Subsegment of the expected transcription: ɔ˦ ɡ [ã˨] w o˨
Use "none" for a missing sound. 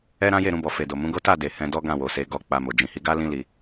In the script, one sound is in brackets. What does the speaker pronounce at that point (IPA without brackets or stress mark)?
ã˦˨